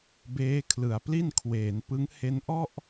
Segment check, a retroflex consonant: absent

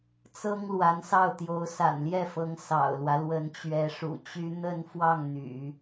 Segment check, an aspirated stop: absent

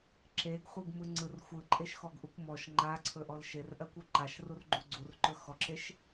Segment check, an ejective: present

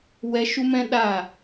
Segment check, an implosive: present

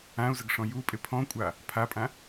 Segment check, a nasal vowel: present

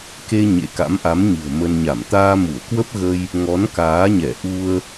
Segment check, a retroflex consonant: absent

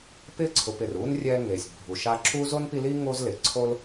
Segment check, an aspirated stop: present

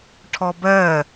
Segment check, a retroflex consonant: present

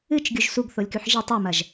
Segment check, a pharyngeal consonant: present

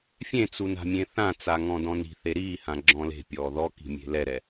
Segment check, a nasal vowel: present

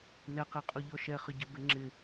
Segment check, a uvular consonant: present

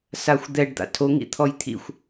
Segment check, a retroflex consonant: present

